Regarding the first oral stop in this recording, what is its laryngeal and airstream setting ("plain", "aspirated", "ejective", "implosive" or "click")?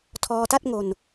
aspirated